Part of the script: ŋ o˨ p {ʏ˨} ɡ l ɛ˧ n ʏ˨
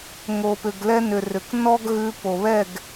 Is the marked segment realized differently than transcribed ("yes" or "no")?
no